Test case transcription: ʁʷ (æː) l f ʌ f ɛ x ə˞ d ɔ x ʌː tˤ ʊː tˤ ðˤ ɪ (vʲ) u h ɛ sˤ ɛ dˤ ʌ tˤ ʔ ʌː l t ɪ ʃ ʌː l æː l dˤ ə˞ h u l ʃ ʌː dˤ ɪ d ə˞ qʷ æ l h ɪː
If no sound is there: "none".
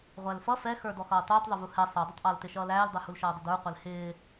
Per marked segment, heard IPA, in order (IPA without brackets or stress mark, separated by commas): æ, v